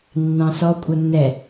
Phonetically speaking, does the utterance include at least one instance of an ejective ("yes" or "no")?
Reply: yes